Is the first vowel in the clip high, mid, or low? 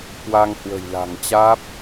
low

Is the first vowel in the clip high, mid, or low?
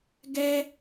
mid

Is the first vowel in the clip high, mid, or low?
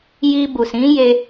high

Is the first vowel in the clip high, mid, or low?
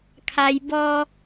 low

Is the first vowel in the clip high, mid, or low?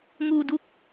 high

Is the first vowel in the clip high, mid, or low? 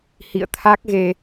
high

